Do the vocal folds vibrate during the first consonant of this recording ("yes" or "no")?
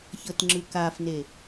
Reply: no